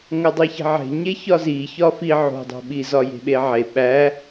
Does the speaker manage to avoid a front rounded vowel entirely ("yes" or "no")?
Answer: yes